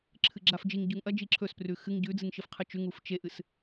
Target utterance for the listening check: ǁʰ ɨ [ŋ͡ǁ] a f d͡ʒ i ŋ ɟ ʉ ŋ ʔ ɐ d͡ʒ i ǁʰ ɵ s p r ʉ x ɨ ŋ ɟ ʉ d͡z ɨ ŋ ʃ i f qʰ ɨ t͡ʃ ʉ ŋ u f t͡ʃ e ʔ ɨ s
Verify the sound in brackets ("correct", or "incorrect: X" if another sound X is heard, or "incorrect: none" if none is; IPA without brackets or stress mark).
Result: incorrect: ɡ͡ǁ